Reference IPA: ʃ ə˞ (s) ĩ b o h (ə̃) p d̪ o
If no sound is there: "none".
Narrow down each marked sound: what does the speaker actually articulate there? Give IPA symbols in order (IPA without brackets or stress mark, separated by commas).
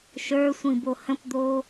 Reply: sʷ, ə̃